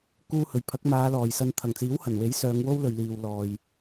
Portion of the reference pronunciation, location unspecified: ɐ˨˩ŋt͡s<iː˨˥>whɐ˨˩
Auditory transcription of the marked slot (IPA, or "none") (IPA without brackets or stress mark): iː˨˥